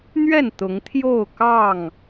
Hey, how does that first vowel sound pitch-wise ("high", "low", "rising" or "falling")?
falling